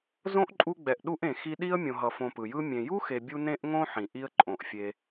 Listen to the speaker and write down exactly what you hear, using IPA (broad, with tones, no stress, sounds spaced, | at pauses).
z õ˥ ʔ ǃʼ u˦ ɡ͡b ɛ˨ ʔ ɗ u˦ ʔ ẽ˩ x i˦ ɗ i˥ ə̯ mʲ õ˨ ɦ ʌ˨ f õ˨ p ɯ˩ j ɯ˦ mʲ ẽ˨ j u˥ x e˨ bʲ u˥ n ẽ˥ ʔ ŋ õ˥ ħ ĩ˩ ʔ i˦ ə̯ ǃʼ õ˩ ʔ fʲ e˨